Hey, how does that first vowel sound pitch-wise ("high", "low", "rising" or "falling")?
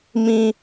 high